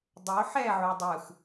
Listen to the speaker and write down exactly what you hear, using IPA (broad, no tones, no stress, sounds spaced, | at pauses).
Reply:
dˤ o ħ ɛ ʕ u dˤ ɯ x